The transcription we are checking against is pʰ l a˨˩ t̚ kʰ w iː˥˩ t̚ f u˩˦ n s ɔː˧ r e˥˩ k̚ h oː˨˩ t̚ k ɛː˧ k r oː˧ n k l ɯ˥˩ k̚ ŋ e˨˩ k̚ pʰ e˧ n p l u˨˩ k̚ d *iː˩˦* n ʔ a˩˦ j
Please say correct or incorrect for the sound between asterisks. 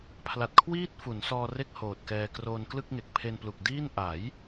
incorrect: iː˥˩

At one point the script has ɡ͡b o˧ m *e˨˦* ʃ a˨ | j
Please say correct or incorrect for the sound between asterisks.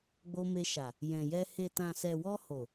incorrect: e˧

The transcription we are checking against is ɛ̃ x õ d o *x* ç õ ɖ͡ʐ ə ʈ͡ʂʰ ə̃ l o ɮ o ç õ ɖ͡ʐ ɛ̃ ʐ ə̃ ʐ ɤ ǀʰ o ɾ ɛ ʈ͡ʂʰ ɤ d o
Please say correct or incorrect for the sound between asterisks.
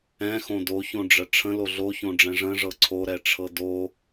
incorrect: none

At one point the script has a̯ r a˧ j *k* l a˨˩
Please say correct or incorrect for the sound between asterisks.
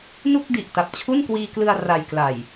correct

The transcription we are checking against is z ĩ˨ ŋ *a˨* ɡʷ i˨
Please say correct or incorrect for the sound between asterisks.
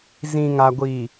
correct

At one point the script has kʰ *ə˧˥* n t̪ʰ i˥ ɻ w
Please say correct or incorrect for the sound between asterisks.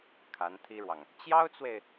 incorrect: a˧˥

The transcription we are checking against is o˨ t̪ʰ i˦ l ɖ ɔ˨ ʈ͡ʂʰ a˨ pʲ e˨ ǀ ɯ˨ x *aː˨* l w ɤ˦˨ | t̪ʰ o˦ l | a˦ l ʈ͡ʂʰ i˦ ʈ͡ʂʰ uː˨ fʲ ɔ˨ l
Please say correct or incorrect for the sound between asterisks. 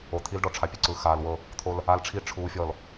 correct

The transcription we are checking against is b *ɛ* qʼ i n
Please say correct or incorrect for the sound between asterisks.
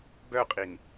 incorrect: œ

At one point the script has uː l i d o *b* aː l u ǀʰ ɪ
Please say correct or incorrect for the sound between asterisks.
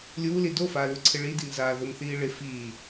incorrect: f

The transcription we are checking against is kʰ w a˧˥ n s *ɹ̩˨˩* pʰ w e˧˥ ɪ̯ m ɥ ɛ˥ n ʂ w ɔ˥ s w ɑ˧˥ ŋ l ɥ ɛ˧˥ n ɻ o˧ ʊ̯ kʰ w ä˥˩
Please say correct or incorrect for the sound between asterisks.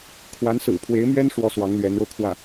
correct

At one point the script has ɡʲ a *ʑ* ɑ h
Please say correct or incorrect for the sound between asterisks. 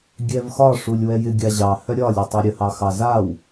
correct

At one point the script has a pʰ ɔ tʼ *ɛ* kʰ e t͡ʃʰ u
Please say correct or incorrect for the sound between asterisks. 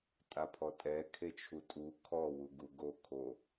correct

